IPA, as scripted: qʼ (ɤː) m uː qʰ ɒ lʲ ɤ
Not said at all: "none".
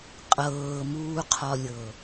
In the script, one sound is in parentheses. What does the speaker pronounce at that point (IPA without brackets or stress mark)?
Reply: ɤː